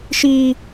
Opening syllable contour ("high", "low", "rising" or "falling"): high